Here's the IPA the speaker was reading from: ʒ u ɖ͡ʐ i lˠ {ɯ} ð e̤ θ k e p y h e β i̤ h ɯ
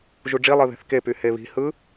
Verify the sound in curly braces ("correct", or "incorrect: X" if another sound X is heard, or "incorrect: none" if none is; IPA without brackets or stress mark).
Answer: correct